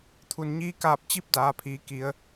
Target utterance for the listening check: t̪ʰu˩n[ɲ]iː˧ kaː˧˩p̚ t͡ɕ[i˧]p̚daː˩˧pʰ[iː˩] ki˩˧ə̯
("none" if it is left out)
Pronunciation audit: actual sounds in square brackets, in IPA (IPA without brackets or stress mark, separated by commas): ɲ, i˧˥, iː˩˧